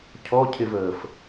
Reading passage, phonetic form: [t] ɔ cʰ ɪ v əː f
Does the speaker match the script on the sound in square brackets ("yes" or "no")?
no